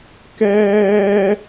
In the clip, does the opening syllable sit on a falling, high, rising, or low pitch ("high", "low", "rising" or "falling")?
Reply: high